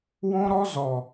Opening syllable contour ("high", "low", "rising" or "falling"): high